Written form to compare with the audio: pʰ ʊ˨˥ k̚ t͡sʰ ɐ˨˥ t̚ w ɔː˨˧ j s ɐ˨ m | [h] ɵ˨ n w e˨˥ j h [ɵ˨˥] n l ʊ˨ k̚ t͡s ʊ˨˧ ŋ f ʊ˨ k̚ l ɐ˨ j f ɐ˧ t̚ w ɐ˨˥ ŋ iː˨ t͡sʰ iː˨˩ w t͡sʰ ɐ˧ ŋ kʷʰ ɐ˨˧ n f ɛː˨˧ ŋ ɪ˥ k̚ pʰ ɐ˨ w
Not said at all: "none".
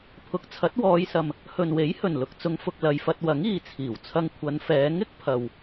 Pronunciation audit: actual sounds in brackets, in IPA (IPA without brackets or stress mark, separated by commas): h, ɵ˨˩